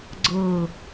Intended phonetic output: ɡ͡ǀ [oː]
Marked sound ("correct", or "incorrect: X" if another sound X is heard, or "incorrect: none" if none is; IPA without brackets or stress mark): incorrect: ɤː